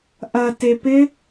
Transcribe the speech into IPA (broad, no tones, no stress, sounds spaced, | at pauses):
ʔ ɐ t e p ɪ